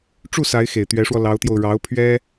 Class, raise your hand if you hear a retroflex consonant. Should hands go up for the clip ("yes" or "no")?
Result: yes